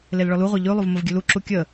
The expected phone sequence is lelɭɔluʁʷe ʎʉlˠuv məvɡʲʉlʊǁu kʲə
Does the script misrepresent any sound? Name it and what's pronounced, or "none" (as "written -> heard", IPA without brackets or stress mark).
ʊ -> u